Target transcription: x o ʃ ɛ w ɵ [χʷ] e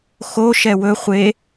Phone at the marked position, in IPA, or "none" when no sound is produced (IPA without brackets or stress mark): χʷ